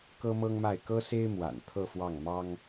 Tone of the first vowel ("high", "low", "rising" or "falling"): high